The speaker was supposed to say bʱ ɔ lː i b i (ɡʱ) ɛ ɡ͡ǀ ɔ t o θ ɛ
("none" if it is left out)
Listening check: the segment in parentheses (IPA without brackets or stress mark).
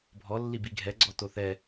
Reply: ɡʱ